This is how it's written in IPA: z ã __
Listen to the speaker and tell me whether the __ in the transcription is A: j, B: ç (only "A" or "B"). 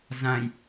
A